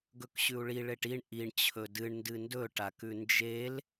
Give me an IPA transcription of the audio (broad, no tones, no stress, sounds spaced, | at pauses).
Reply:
ɡ ɵ k ɕ ʉ u̯ ɭ i ɭ e ʈ i ɳ ʔ i ɳ t͡ɕʰ ɵ d ɨ ɳ n d ɨ n d ɵ ʈ a k ʉ n d͡ʒ e l